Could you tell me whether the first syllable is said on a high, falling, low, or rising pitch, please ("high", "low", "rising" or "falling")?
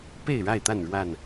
falling